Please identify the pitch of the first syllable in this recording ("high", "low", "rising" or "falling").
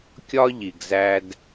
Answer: high